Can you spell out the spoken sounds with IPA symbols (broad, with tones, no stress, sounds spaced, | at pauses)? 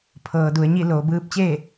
pʰ ɤː˩ d u˩ ə̯ ɲ i˥˨ l oː˩ b ɯː˧ p̚ t͡ɕ eː˥˨